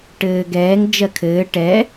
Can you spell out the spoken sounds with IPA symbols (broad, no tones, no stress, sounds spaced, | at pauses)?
ʈ ɘː ɡ ɛː ŋ d͡ʒ ɜ kʰ ɘː ʈ ɛ